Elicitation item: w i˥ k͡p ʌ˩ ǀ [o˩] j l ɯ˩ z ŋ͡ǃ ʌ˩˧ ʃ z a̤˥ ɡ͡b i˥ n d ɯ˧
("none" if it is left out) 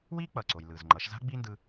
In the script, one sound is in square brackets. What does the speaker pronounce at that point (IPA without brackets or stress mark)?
o˩